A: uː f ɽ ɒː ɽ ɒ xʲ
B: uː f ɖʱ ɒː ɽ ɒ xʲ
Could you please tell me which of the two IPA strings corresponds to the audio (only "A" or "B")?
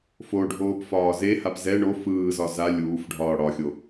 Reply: B